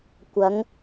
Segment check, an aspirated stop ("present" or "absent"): absent